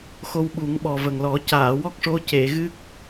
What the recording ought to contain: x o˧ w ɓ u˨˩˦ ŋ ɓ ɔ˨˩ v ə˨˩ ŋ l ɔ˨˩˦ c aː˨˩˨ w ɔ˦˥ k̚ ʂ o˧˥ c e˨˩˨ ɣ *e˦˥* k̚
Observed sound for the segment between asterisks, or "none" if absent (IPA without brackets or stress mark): ɨ˦˥